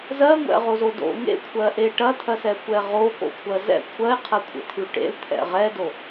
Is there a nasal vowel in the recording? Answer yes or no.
no